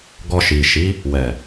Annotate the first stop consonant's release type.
plain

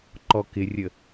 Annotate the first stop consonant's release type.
click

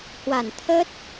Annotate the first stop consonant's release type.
aspirated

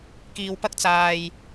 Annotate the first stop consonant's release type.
plain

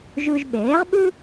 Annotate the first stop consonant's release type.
implosive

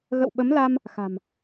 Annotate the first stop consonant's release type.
implosive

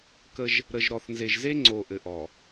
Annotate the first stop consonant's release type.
plain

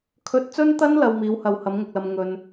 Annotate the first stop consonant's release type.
aspirated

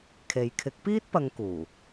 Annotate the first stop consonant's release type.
aspirated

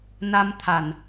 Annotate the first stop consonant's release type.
aspirated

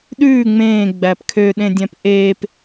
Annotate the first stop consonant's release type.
implosive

